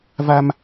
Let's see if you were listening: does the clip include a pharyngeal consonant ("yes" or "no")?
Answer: no